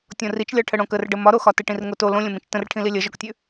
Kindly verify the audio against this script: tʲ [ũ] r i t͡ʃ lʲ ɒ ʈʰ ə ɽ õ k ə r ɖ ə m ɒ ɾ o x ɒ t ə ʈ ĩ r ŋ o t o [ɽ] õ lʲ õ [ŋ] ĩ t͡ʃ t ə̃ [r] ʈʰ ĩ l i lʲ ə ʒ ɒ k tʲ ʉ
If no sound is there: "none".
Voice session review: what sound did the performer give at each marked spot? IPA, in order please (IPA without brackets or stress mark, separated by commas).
õ, l, m, r